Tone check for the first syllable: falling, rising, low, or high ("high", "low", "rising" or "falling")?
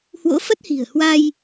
rising